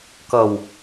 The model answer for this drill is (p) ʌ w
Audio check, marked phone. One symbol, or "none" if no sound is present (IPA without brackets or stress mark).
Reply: k